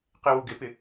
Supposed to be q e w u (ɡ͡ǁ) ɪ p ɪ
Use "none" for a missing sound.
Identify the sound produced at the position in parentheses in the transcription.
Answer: ɡ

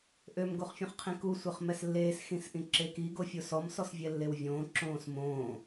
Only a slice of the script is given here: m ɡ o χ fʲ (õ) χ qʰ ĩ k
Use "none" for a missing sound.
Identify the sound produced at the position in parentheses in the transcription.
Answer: õ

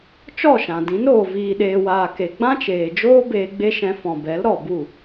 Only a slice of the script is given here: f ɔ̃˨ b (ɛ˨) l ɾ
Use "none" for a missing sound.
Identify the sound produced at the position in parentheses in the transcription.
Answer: ɛ˨˦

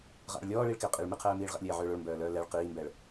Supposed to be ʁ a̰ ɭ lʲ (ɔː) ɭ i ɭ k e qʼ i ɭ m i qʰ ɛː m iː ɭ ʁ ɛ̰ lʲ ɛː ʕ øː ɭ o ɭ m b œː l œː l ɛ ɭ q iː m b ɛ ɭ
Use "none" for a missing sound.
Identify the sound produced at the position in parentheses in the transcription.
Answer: ɔː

